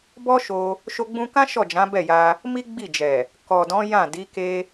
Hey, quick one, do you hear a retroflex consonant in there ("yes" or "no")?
no